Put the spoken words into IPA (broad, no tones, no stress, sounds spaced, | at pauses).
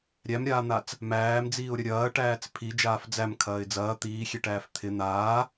ɾʲ æ m ɾʲ aː n̪ a t͡s | m æː m d͡z iː ʊ̯ ɾʲ ɐ ɾʲ ɐː ʈ æː t͡s pʰ i d͡ʒ aː f d͡z æ m kʰ ɐː ɪ̯ d͡z ɐː t̪ iː xʲ e ʈ æː f t̪ʰ ɪ n̪ aː